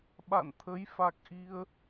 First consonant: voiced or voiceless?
voiced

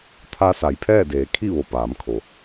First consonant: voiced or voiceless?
voiceless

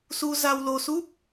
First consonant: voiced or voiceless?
voiceless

